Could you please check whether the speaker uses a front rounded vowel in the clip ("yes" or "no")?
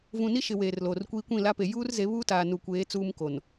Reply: no